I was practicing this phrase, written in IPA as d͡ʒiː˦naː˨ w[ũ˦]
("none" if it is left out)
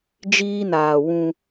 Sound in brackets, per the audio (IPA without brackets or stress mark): ũ˦